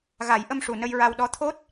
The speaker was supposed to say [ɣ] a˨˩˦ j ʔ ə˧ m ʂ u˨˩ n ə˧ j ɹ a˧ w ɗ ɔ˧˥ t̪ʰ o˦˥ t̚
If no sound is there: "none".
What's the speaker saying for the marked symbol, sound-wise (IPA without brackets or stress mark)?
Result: ɣ